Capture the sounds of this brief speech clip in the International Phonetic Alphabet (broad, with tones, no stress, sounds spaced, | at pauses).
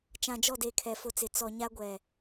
t͡ʃ ã˨ d͡ʒ ɔ˦˨ d e˨ kʰ ɛ˨ f ʊ˦ t͡s ɪ˨ t͡s ɔ˨ ɲ a˦ ɡʷ ɛ˨